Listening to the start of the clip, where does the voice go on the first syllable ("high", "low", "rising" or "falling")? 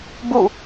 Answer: falling